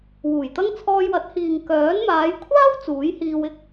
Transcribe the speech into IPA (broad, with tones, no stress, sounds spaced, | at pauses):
w uː˨˩ j t̪ ɐ˥ ŋ t͡sʰ ɔː˧ j w ɐ˨˥ t̚ h iː˨ ŋ k œː˨˥ n m aː˨˧ j kʷʰ aː˥ w t͡s uː˨˥ j h iː˧ w ɪ˥ k̚